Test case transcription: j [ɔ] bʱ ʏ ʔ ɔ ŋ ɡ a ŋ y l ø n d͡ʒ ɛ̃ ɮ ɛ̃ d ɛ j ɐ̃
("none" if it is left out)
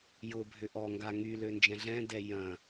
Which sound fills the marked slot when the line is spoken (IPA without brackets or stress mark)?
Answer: ʊ